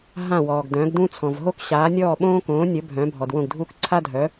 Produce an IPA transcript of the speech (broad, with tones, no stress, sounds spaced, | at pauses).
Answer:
ɦ ã˥˩ w ɔː˩ ɡ d œ̃˩˥ ɡ d ũ˥ t͡sʰ ɔ̃˩ v ɦ o˥ k ɕ aː˩˥ nʲ ɔː˥˩ ɓ õː˥ k õː˩˥ nʲ ə˩˥ bʱ œ̃ː˩˥ bʱ ɔ˩ d w õ˥˩ ɡ dʱ uː˥ k ǀʰ a˥ dʱ œ˩˥